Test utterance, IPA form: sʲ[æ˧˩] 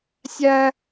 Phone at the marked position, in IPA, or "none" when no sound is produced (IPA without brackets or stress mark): æ˥